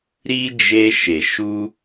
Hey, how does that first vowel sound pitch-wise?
high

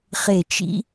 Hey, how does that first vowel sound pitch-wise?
falling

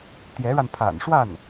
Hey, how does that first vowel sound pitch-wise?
rising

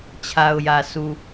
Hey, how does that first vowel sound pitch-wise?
low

